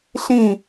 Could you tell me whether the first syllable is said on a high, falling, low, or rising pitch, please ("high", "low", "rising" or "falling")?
falling